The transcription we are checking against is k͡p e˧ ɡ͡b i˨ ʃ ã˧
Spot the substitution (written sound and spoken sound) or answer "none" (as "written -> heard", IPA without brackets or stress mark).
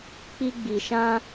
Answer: e˧ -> i˧